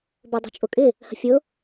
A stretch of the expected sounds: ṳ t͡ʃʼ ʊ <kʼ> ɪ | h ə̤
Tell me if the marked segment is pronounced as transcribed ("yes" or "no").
yes